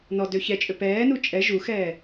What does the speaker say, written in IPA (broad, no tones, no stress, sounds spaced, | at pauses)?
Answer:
n ɔ d ø ç ɛ t͡ʃʼ ø p ɛː n u t͡ʃʼ ɛ ʒ u x ɛː